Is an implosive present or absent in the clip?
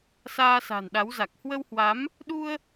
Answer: present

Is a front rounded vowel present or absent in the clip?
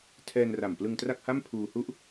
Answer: absent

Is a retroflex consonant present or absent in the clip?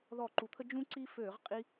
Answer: absent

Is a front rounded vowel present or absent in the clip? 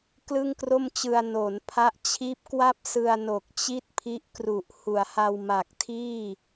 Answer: absent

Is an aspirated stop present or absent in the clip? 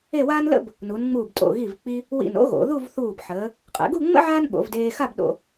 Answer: absent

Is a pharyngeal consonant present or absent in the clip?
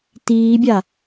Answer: absent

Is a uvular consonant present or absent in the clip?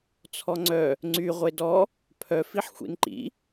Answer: present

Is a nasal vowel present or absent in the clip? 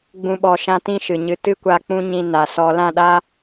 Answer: present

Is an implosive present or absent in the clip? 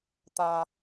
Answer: absent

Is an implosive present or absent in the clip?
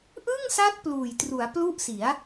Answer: absent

